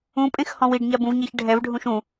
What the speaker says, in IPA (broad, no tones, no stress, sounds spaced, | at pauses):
ũ pʼ ẽ x h ɔ̃ w i ɖ ɲ a b ũ v ɲ ɛ ç ɖʱ ɛ v ɖʱ ũ ʃ ũ